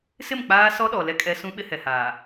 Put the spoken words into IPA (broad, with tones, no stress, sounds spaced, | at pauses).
s ɪ˦˨ m k͡p aː˦ s ɔ˦ ɗ ɔ˨ l ɛ˦ kʼ ɛ˦ s ũ˦ ɓ ɪ˦ h ɛ˨ h aː˨